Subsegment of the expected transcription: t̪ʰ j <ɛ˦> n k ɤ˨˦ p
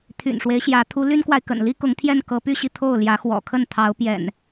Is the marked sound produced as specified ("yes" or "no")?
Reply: no